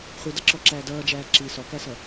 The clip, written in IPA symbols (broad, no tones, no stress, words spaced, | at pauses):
χʷidʌǁɔǁæː dʌːd͡ʒæːǁiː sɔkæsʌ